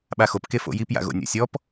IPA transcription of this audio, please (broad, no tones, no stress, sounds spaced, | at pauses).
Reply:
ɓ a x o p k e f o̰ j i p j a̰ ɣ o̰ nʲ ɔ̰ sʲ ɔ p